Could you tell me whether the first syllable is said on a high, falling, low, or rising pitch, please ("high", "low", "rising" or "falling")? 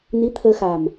rising